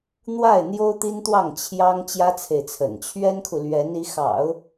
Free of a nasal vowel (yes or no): yes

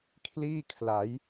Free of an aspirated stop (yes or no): no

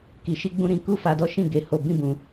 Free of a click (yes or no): yes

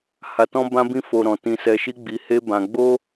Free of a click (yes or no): yes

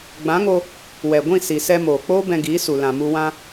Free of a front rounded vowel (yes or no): yes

